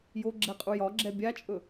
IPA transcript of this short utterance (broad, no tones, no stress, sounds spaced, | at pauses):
j o ɡ͡ǁ ɛ qʼ u j ɒ ɡ͡ǁ ɛ bʲ a t͡ʃʼ ɵ